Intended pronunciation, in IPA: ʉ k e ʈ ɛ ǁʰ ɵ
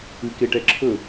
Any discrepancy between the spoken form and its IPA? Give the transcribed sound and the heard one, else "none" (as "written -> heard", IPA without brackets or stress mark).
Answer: none